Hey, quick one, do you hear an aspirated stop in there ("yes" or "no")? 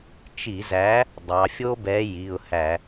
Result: no